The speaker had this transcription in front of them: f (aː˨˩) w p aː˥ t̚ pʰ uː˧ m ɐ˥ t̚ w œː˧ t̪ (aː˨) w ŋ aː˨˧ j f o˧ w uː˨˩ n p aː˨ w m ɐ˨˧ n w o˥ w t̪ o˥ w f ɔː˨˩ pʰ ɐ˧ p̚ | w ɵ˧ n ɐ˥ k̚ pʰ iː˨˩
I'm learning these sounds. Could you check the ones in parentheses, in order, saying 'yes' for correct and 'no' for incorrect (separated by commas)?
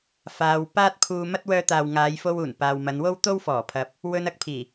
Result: no, yes